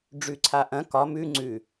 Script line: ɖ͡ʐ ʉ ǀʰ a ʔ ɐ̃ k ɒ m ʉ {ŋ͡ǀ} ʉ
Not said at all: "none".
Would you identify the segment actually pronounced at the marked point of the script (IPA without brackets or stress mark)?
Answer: ŋ͡ǀ